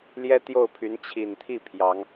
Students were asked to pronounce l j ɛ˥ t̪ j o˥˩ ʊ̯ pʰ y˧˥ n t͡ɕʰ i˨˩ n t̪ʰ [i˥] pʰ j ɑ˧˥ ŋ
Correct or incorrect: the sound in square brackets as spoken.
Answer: incorrect: i˥˩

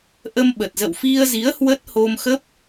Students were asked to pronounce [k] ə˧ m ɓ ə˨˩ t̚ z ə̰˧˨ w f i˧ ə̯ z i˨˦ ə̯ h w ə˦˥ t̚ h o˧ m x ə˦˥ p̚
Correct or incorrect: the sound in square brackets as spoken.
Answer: incorrect: ʔ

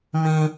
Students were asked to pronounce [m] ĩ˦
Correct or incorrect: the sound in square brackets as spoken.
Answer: correct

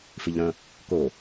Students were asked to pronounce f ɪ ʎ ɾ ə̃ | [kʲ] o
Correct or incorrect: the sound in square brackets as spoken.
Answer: incorrect: k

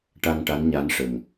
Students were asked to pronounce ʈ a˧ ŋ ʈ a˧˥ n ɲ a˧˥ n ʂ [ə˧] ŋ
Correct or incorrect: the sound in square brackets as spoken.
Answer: incorrect: ə˨˩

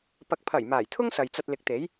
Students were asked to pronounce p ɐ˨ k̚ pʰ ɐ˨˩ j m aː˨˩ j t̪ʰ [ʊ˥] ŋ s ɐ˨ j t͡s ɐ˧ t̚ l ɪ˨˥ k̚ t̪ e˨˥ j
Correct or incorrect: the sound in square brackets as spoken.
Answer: correct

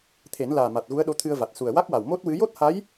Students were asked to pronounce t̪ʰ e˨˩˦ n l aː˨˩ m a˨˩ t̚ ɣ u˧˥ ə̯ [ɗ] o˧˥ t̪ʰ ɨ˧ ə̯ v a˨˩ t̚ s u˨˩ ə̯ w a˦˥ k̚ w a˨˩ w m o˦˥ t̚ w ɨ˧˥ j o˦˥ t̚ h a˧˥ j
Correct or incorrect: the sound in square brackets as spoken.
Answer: correct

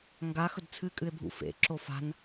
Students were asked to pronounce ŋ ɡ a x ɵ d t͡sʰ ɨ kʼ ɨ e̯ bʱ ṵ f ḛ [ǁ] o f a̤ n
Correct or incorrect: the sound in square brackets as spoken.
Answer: correct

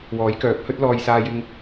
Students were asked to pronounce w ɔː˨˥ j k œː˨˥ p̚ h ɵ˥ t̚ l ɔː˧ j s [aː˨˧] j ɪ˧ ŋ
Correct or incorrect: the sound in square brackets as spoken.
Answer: incorrect: aː˧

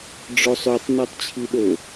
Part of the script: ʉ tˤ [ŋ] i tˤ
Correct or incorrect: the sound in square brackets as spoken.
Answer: incorrect: n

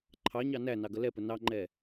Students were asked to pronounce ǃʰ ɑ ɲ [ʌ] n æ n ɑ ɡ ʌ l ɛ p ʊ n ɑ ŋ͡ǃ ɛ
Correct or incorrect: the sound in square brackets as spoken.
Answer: incorrect: ɑ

